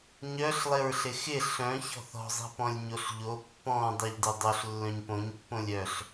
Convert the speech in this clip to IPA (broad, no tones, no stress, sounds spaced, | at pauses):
ɲ œ ɬ lˠ ɪ ɹ ɬ ɪ x ɪ ɬ œ̃ ç ɔ̤ θ ɔ̤ zˤ i̤ p ɔ̃ lʲ ɲ o ɬ ʎ o pː ɔ̃ dˤ ɤ ʎ d ɪ dˤ o ɬ lː œ̃ ɲ p õ ɲ pː õ lʲ œ ɬ